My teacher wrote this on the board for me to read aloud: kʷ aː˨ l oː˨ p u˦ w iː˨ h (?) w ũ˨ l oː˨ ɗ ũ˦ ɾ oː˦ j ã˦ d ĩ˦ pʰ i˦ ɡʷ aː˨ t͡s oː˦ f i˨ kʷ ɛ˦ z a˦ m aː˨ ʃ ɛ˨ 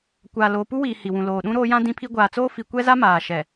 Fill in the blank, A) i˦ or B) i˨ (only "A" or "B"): B